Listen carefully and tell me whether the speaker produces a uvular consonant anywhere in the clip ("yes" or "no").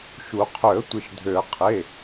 yes